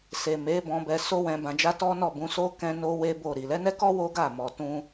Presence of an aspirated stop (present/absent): absent